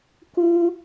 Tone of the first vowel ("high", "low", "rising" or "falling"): high